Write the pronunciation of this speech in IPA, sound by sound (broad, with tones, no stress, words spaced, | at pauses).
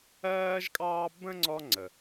ɜː˥ʒkʼɑː˥ bə̃˥ŋ͡ǀɔ˦ ŋ͡ǀə˨